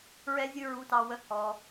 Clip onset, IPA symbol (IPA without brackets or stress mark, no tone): ɹ